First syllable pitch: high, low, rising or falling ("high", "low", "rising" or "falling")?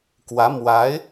rising